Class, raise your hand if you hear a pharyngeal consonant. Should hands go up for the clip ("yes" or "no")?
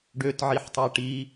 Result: yes